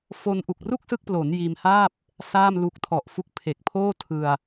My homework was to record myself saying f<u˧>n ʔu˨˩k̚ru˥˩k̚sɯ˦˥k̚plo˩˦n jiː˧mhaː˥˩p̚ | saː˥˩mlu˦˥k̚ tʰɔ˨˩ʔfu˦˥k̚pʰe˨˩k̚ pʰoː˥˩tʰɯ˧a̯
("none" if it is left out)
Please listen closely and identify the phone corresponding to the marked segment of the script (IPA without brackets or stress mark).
o˧